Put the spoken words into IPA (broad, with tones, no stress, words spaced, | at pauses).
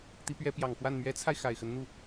t̪i˧˥pɥɛ˧˥pjɑ˨˩ŋkwa˥˩n mɥɛ˧˥t͡sʰa˧ɪ̯ xa˨˩ɪ̯xə˧˥n n̪u˥˩